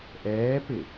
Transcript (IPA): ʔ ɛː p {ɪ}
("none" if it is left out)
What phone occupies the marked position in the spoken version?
ɪ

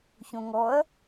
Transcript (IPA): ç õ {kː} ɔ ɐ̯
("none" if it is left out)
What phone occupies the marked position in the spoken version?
ŋ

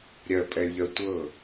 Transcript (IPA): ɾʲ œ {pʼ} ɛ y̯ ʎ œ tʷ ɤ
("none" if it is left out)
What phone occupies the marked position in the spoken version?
pʼ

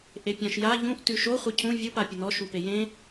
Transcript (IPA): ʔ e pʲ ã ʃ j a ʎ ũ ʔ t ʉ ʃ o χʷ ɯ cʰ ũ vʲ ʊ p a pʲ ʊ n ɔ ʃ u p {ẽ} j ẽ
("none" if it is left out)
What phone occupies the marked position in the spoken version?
e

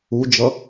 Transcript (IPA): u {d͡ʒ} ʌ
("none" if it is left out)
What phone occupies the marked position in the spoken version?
d͡ʒ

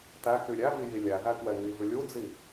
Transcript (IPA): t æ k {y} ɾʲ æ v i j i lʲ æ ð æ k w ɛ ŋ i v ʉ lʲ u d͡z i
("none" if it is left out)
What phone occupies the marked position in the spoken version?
y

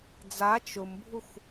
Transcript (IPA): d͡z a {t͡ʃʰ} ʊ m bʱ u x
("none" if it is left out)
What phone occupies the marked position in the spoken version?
t͡ʃ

